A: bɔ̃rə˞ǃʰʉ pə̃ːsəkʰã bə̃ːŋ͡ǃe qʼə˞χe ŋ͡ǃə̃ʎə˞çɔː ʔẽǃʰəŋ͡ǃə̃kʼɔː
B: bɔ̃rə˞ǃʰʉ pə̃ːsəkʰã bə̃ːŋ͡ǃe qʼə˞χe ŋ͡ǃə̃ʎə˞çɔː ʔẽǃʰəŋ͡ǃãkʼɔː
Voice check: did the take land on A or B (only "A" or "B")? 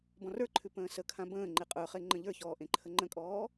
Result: A